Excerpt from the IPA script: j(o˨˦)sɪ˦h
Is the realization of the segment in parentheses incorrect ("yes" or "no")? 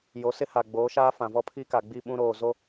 no